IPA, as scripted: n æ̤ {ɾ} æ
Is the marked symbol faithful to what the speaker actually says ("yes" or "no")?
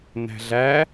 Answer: no